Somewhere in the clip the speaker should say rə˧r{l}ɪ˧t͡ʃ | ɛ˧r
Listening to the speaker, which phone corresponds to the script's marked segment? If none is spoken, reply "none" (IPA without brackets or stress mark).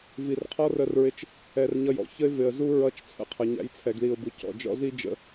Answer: ɹ